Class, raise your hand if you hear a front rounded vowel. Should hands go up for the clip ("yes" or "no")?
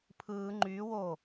yes